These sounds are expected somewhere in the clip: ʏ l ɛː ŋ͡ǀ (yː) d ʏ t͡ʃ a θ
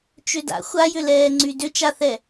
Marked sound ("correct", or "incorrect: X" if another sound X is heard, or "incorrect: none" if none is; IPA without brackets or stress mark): incorrect: y